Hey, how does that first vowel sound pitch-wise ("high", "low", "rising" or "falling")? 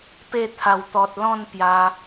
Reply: falling